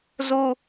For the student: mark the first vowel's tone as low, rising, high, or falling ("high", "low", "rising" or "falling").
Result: high